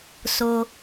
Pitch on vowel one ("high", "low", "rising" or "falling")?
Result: low